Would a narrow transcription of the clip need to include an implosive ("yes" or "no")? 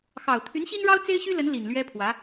no